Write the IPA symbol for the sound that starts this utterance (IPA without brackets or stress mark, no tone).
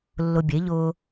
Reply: lː